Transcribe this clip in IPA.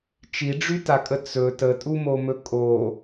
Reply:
t͡ʃiɖ͡ʐytakʼə t͡sɵ tətʼumomɵ kʼo

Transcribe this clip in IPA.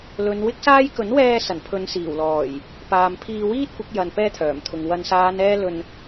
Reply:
lɵ˨˧nwɪ˥k̚saː˥j kɵ˨˥nwɛː˧ sɐ˨˩npʰɵ˨˧nsiː˨˩wlɔː˨˩j | paː˨mpʰiː˧wiː˥t̚ kʷɪ˨˥k̚jɐ˨n pɛː˥t̪ʰœː˨˩mt̪ʰʊ˨ŋ wɐ˨nsaː˨˧n ɛː˥lɵ˧n

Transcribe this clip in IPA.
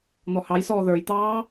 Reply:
n̪ɔhɑjsɔː ðə˞jt̪ɑː

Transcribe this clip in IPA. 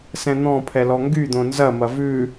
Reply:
sɛ̃n̪ɔ̃pʰɛ lɔŋɡyd̪õ nzɐmɐ vʉ

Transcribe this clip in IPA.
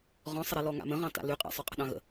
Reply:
ʁɔ̃sˤəɾe lɔŋa̰mə̃ʁɑ̃ ta̰lyqʼa̰ sˤøqʼə̤ɗɑ̃ɣə̰

